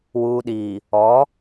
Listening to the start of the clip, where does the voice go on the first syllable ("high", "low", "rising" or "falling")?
low